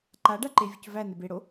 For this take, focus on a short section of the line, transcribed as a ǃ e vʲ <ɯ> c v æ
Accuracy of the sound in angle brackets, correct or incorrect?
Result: incorrect